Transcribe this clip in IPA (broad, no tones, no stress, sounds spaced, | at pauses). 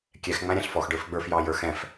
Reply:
kʲ ɛ x ŋ͡m æ̃ ɾʲ æ̃ ɬ f ɔ x ɖ ə˞ f ɡ͡b ə˞ f j ɑ j ə˞ x ɛ̃ f